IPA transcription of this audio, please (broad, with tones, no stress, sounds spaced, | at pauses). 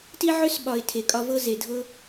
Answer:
t i˦ ʕ ø˦ s ɓ ɒ˨ ɪ̯ tʰ e˨ kʼ ɒ˧ v ɤ˦ z e˨ dʱ ɤ˦